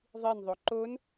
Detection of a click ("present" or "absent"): present